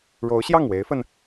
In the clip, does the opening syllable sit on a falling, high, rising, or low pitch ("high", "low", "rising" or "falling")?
rising